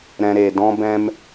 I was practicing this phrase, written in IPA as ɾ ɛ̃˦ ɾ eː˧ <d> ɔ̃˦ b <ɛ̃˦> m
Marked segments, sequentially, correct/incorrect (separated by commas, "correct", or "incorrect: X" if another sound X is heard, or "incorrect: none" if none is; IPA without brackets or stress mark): correct, correct